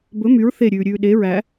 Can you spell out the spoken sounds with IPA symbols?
bɵ myɹ θeɾʲʉːɾʲʉː ɗe ɹæ

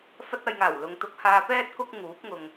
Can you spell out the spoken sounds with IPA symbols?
fɐ˧t̚ɐ˨jŋaː˨˩w lʊ˨˧ŋ t̪ʊ˨˥k̚haː˧pɛː˥t̚ kʊ˥k̚ ŋuː˨˥p̚ŋʊ˨ŋ

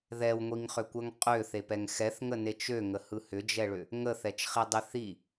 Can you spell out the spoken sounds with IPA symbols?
ðɛwŋʷiŋχʏkʷɜŋ qʼøθepɛŋ xɛθŋənet͡ʃ øŋəhɯ hʏd͡ʒɛɭʏ | ŋəθɛt͡ʃχidˤi θi

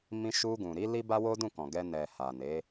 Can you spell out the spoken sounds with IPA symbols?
mĩ˧ʃu˧ɡũ˨ɾi˨˦ li˦ba˦wo˦ dũ˦˨kɔ̃˨ɡɛ˧ nɛ˨ ha˨ne˨˦

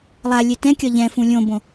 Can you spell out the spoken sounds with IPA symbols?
lˠa lʲetɛ̃kʲɒ ʎɛ̃fũ lʲõbõ

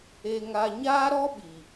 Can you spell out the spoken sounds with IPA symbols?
e˨ŋa˨ ɲaː˦ɾɔ˦ɓi˨

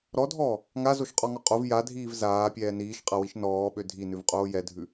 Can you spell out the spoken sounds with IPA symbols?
ɾɔdʱɔː | ŋazoʃqʼɔŋɔ qʼov jadʱiːv zaːpʲɛː niːʃqʼawiʃ nɔːɓø dʱinʉvqʼoː jɛdʱʉ

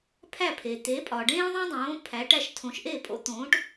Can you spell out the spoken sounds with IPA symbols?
pʰæ˥˩pʰe˩ t̪e˩˥ pʼɒ˩ɖẽː˥ðˤẽ˥dˤõː˩˥ pʰæ˩˥ʈæ˧ʃ tʰõ˩˥ʃʔe˥˩pʼo̰˥ t̪õː˩˥ʈ

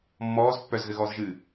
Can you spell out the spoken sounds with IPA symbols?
mːɔːz pːœzɣɘɣɔːzʒɨː

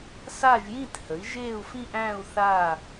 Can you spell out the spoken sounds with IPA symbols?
sa˥˧ʒjĩ˥˧thə˨˥i̯ʒeː˥˧u̯ fĩ˥˧ʔæ̃ː˥˧u̯ θaː˥˧

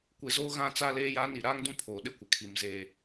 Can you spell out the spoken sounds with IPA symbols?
kʷe˨zoː˦ ɣã˦t͡sa˦ leː˦jaː˦ni˨ ɾaː˦ŋdũ˦ pʰoː˨ɗɪ˦kʷɪ˨ kʰi˨mzeː˦˨

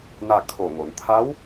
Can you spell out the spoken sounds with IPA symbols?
na˥˨kʰo˧˩ŋo˩˧n t̪ʰa˧˥w

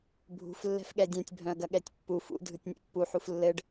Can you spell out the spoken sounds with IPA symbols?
bʱṳf lːɛ̤fɠɛdʲœ̃tʲ bʱœ̃ɐ̯ɡɐɠɛtʲpːu fṵ dʱɯtʲnʲɛ̰pːu ħuflːɘɖ

